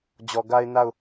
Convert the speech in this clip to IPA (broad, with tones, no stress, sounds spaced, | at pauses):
d͡ʑ ɔ˨ ɡ a˦ ɪ̯ n a˦˨ ʊ̯